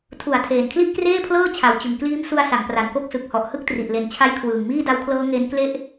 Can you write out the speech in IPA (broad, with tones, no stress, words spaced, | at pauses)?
tʰu˩˦a̯ tʰeː˨˩nkʰli˥˩ʔkreː˥˩pʰlɤː˥˩ t͡ɕʰa˨˩wt͡ɕɯ˨˩ŋkliː˦˥m su˧a̯ sa˩˦ŋpra˩˦nko˦˥k̚ sɯ˨˩k̚hɔ˨˩ʔ hɯ˥˩k̚tri˨˩ʔle˨˩n t͡ɕʰa˦˥jkʰwɯː˨˩ŋ miː˥˩da˦˥wkʰlɤː˦˥ ŋe˦˥n kle˥˩ʔ